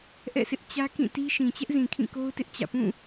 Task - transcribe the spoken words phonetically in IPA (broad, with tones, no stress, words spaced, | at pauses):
ʔɛ̰˦˨sʰɪ˦ʔ t͡ɕä˦kĩ˦˨ti˦ ʃĩ˨t͡ɕɛ˦ʔzĩ˨ kʰĩ˦˨ko˦ʊ̯tɪ˦ʔ t͡ɕä̰˦˨ pũ˦˨